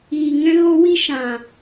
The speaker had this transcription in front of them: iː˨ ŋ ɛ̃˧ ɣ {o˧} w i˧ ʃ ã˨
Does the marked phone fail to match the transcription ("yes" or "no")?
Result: no